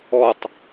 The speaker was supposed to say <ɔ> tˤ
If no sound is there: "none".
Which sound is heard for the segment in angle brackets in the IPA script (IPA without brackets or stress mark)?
ɔ